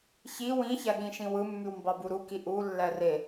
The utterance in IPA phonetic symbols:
ç i w ĩ ç æ ɠ ĩ ʃ ĩ w ɯ mː y w m b ɑ b u ɾ u k i ʔ u lː æ r e

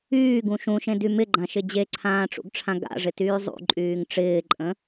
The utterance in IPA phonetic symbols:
yː ɡ ũ ʃ ũ ʃ ẽ d y m ɪ ɡ͡ǃ ã ʃ ɪ d͡ʑ e ǀʰ ãː ʈ͡ʂ ṵ ɡ ʈ͡ʂʰ ã ɡ a̰ ʐ ɪ t yː zˤ ṵ ǃʼ yː ŋ ʈ͡ʂ ɪː ǃʼ ə̃

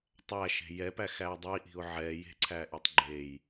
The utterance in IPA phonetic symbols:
tˤ æ ʃ e̤ j ɛ p æ x æ ɪ̯ dˤ i ʔ i̤ ʊ̯ ʕ ɛ j e̤ ǀʰ æ ʔ i tˤ ɡ͡ǃ e j

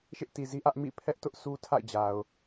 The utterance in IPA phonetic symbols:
ʃ ɪ˦ ʔ t i˨ z i˦ ʔ ä˦ ʔ m ḭ˦˨ pʰ ɛ˦ ʔ t ʊ˦ ʔ sʰ u˦ tʰ a̰˦˨ ɪ̯ d͡ʑ a˨ ʊ̯

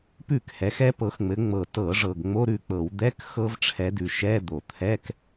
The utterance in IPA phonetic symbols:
p ʉ˥˩ k h ɛ˨˦ x ɛ˦˥ p ɤ˨˦ x ŋ͡m ɘ˨˦ ŋ͡m ɤ˨˩ t ɤ˧˩˧ ʐ ɤ˨˩ ɡ ŋ͡m o˧˥˧ ɾ ʉ˥˩ k͡p ɤ˧˩˧ w d̪ ɛ˧˥˧ k x ɤ˦˥ v ʈ͡ʂʰ ɛ˨˦ d ʉ˨˩ ʃ ɛ˧˥˧ d̪ o˧˩˧ t̪ʰ ɛ˧˥˧ k

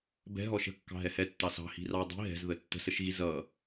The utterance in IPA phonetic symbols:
b ɛ̤ ɦ ɔ ʃ ə̤ kː ɑ̤ ɦ ɛ h ɛ tː ɑ s ɑ̤ h i̤ r ɑ dˤ i̤ ɦ ɛ̤ z ð ə tː ə̤ s ə ʃ ɣ i z ʌ

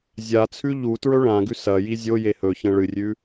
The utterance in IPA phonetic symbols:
zʲ a t͡sʰ ʉ ʎ u t ɹ ɵ ɭ ã ɡ ʉ s ɐ j i zʲ o j e h ɵ ç ɐ̃ ɭ ɨ rʲ ʉ

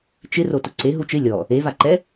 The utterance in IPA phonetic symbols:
t͡ʃ ɪ r o t ʊ ǀ e ɦ u t͡ʃ ɪ lʲ ɔ | e v a ǃ ɛ

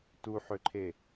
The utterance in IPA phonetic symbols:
t u ħ ø ǃʰ e

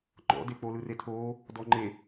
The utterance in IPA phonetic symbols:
ŋ͡ǃ ɔ̰ d e k͡p o l ɯ r e tʰ oː | d ɔ ŋ͡ǃ e

